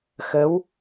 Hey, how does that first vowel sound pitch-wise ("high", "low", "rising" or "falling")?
rising